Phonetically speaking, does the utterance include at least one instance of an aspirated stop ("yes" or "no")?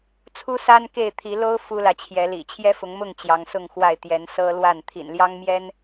yes